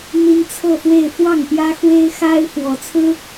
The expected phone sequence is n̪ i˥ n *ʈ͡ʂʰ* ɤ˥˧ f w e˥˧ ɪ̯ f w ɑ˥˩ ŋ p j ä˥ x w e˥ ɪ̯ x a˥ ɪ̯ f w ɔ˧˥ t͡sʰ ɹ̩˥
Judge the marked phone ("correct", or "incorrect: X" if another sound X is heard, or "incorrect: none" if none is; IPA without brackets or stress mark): incorrect: t͡sʰ